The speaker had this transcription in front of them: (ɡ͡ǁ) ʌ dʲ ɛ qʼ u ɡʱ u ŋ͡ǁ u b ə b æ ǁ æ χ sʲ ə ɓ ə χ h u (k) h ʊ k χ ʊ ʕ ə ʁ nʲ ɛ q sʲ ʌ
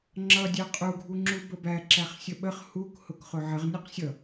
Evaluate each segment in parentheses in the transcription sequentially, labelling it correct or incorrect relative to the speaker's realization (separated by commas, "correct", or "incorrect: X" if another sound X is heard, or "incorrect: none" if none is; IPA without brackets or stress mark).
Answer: incorrect: ŋ͡ǁ, correct